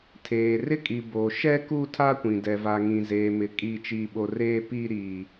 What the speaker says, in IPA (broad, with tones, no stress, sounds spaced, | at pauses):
tʰ eː˨ r ɪ˦ kʼ i˨ b oː˨ ʃ ɛ˦ k uː˦ tʰ a˦ kʷ ĩ˨ d ɛ˨ v a˨ ŋ ĩ˨ z eː˨ m ɪ˨ kʼ iː˦ t͡ʃ iː˦ ɓ o˦ r eː˦ p iː˦ ɾ iː˦